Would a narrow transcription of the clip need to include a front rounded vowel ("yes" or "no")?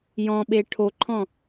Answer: no